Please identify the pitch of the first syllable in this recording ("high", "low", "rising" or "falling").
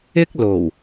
high